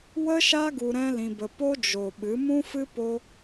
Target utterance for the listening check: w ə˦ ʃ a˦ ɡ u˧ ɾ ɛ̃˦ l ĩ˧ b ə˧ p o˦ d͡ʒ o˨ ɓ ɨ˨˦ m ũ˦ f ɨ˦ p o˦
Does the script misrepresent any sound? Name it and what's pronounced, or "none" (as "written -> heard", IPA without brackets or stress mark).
none